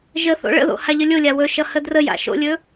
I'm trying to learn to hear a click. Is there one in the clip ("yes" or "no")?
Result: no